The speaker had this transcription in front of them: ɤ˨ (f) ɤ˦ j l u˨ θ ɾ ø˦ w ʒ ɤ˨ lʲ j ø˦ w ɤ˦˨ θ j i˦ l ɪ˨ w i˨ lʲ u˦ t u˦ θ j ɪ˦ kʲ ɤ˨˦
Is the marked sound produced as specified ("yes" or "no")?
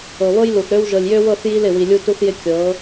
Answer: no